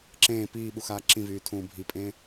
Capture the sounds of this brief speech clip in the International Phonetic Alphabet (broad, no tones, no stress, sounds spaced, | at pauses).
ǁ ẽː p iː ɓ u x aː ǁ ĩ v yː tʰ ũː bʱ i pʼ ẽː